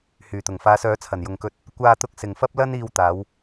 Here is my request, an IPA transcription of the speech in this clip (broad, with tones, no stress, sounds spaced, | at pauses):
h yː˨˩ t̪ ʊ˨˩ ŋ f aː˨˧ s œː˨˥ t͡sʰ ɐ˨˩ n j ʊ˨ ŋ k ɵ˧ t̚ | kʷ aː˧ t̪ ʊ˧ k̚ s ɪ˨ ŋ f ɐ˥ p̚ l ɐ˥ n iː˧ w t̪ aː˨˧ w